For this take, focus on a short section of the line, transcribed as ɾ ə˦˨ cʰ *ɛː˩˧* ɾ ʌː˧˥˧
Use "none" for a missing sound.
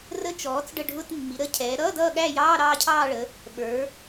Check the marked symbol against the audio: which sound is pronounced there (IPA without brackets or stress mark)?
ɛː˩˧